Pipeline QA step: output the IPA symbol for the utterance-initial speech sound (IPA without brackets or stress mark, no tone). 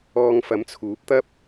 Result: ɔː